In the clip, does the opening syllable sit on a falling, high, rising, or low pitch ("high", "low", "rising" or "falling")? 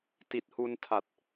low